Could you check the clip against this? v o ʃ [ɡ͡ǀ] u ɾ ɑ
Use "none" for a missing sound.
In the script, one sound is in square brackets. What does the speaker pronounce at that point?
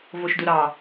d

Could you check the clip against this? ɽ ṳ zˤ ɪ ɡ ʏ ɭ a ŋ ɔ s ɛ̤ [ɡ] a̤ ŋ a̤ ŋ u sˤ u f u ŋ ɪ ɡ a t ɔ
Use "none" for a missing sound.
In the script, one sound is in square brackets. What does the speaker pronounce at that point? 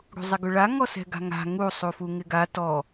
ɡ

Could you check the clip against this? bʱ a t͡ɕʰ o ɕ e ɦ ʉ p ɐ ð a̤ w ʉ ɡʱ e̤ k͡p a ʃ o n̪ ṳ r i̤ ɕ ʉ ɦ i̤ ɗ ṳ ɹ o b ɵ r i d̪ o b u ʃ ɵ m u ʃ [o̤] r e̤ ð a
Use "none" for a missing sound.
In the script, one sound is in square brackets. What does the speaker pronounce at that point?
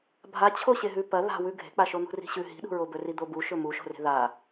o̤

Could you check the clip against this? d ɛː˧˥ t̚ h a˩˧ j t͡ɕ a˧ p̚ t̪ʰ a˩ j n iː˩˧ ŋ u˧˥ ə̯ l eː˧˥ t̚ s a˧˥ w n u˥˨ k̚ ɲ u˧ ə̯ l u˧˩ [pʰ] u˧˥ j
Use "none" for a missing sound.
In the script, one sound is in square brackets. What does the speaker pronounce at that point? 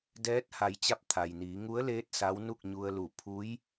pʰ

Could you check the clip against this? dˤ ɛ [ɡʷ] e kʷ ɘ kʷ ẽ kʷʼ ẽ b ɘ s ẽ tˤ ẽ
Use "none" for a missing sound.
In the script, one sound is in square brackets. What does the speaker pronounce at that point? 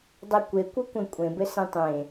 kʷ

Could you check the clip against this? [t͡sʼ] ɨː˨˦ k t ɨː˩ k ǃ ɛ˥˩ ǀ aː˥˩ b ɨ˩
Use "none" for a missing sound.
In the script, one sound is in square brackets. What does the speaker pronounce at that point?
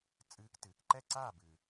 t͡sʼ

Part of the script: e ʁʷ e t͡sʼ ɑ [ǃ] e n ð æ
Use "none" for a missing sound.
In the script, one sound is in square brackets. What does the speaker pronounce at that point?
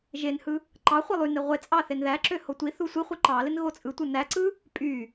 θ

